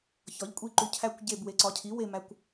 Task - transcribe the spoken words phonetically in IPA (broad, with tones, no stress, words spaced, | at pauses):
çɒ˩˥ʎkʷʼi˦˨ǃu˨ cʰæ˦˨kʷ ɟe˦˨b we˩˥ǀɒ˩˥cʰi˩˥ we˦˨mæ˨kʷ